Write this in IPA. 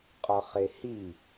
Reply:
qʼɒχehi

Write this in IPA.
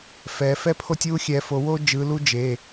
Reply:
fɛ˨˦ fɛ˥pʰo˥tʲwu˥ xʲɛ˨˦fo˨˦wo˥d͡ʒɯ˨˦ lu˥d͡ʒe˩˧˩

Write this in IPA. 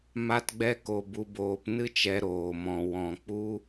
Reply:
ma˦tɡ͡bɛ˦ ko˧bu˧boː˧p nɨ˦t͡ʃɛ˧ ɾoː˨mɔ̃˨ wɔ̃˧ k͡pu˧

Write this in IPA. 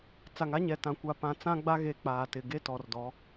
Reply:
t͡sa˨ŋa˦ɲɛ˨tã˨ kʷa˨pã˨ t͡sã˦ɡ͡ba˦ɣe˨ k͡paː˨tɪ˨ ɡe˦tɔ˨rdɔ˨˦

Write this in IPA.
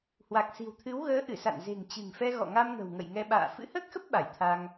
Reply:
hwa˨˩k̚si̤˨˩wt̪ʰɨ˨˦w ɣəː˨˦ ʔɨ˧˩sa̰˧˨n ze̤˨˩ŋt͡ɕɨ̤˨˩ŋfɛ˧ ɣɔ̰˧˨ŋa˧mŋə̤˨˩w ŋə̰˧˨jŋɛ˧ɓa̰ː˧˨ fɨ̰˧˥həː˦˥k̚xə˦˥p̚ ɓa˧˩jt̪ʰa˧ŋ

